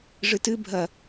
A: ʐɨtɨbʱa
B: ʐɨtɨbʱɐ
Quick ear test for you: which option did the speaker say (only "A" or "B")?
B